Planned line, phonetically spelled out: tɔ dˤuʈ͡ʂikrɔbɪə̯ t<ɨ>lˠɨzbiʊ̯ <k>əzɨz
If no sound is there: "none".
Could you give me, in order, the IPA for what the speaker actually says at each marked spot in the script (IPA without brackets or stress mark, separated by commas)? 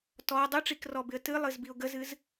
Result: ɨ, ɡ